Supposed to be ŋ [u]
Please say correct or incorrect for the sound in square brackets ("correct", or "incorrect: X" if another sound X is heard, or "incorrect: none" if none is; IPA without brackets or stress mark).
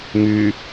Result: incorrect: y